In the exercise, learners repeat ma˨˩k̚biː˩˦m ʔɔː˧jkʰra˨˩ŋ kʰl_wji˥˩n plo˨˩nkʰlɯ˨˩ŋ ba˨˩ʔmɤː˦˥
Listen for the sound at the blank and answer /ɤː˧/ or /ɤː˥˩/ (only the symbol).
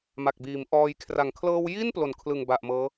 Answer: ɤː˧